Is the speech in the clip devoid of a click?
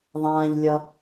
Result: yes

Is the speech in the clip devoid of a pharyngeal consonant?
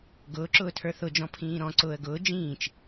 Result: yes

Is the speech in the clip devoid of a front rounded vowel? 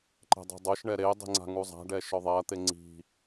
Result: yes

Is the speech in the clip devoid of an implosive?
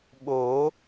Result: no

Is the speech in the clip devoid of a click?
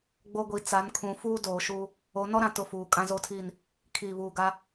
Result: yes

